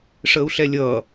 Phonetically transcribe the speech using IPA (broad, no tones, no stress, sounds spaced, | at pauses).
ʂ əː u̯ ɬ ɛ lʲ ʌː